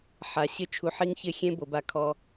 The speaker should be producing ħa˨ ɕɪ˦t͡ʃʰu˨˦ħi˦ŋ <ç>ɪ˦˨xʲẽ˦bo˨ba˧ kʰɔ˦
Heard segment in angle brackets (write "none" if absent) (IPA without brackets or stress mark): ç